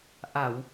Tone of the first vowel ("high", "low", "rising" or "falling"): low